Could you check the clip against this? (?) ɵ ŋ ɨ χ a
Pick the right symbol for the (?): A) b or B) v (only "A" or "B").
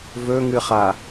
B